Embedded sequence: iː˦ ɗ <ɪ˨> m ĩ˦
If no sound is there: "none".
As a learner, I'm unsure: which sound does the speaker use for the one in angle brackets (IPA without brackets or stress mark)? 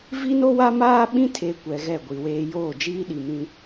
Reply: i˨